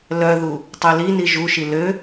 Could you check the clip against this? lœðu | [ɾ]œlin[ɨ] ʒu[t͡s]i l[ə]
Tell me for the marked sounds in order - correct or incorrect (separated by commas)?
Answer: incorrect, incorrect, incorrect, incorrect